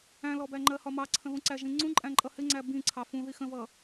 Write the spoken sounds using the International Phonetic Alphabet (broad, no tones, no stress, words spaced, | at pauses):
æ̃lɔbæ ŋ͡ǃɜhɒmɑǀʰə̃ ðũǀæʒĩŋ͡ǀũ ǃʼæ̃ǃʼʌhɪ ŋ͡ǀæbĩ ǀʰɑfũði xə̃vʌ